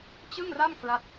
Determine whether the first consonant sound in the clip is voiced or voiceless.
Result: voiceless